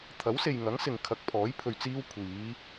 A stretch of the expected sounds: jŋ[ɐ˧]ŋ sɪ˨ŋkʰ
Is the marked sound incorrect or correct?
incorrect